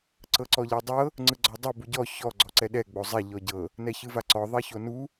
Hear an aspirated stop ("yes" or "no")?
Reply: no